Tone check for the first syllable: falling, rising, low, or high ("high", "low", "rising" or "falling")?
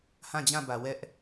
falling